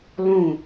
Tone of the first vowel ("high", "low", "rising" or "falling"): falling